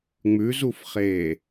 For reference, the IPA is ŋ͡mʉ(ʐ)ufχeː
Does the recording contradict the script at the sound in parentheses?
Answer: yes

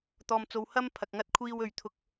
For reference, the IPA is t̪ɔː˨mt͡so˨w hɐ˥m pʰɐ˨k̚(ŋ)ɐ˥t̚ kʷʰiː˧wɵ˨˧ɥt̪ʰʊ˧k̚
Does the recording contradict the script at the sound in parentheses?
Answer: no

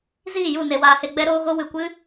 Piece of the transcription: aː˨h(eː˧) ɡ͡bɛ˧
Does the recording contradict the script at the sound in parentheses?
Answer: yes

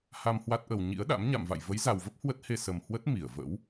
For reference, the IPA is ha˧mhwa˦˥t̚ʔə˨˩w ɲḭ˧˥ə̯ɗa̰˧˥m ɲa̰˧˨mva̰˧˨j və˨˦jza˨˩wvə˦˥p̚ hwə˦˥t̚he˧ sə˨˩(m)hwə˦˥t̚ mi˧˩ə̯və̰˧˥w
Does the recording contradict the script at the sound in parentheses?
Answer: no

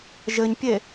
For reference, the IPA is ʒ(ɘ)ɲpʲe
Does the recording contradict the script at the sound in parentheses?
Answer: no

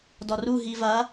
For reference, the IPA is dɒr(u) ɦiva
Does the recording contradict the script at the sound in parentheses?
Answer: no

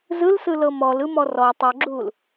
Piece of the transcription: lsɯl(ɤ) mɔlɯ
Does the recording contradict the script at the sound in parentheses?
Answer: no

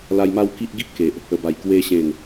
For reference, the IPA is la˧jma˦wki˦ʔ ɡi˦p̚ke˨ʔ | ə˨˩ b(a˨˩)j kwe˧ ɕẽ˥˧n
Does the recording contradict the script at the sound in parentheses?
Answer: no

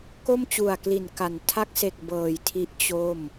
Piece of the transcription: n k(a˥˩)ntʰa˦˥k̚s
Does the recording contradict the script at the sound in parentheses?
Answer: yes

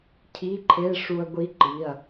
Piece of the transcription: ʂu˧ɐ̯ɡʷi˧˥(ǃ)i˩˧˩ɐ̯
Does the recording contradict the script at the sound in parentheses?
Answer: no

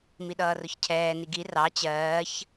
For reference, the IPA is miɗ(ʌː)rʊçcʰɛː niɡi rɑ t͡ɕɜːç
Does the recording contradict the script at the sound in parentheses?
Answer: no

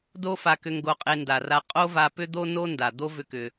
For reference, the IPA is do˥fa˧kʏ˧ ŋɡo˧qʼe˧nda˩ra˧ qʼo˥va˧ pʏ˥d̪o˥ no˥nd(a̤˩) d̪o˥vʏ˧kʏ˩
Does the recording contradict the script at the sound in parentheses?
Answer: yes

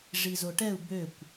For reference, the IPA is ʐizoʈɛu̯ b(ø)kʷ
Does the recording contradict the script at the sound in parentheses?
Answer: no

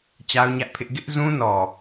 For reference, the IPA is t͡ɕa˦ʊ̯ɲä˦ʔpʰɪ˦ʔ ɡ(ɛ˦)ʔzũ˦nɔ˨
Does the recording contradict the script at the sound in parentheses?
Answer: yes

